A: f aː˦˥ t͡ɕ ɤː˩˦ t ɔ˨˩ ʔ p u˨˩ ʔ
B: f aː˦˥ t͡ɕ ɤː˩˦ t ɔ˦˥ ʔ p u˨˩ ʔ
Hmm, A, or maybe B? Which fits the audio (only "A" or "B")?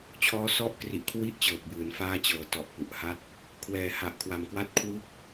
A